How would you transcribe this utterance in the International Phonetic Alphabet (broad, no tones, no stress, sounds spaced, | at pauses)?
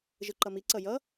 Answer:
ʒ ɯ ǃ ʌ m i ǀ ʌ j ʌ